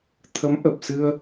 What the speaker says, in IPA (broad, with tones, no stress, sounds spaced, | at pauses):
t̪ʰ ə˨˦ m ʔ ə˨˩ p̚ s ɨ˧ ə̯